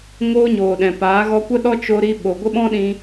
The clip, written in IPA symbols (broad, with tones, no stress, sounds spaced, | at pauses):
ŋ oː˦ ɲ oː˨ ɗ ɛ̃˨ p aː˨˦ ɣ ɔ˧ kʷ ə˦ ɗ ɔ˦ t͡ʃ o˧ ɾ i˧ ɓ o˨ ɡʷ ə˦ ɓ ɔ̃˦ ɗ ĩ˧